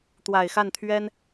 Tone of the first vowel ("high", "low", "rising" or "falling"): low